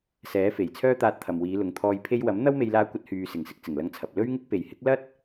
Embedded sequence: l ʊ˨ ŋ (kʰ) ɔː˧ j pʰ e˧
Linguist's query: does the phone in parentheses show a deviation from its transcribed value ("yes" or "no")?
yes